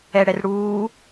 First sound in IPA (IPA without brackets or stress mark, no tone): ɛ